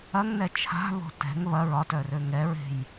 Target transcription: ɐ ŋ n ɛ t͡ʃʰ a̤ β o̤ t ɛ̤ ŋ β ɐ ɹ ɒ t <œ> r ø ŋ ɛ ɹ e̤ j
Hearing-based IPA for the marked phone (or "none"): œ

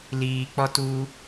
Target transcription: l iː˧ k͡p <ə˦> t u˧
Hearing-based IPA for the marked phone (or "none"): ɔ˦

